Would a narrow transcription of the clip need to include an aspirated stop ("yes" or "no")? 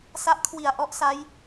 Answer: yes